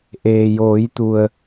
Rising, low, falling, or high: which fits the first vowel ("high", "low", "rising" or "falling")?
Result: low